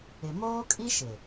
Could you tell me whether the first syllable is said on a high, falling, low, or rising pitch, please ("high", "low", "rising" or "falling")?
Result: low